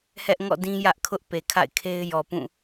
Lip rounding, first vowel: unrounded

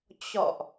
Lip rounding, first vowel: rounded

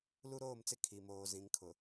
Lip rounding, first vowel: rounded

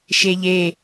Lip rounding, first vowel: unrounded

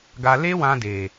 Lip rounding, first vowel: unrounded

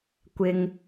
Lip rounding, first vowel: unrounded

